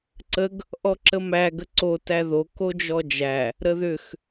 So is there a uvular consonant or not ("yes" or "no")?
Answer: no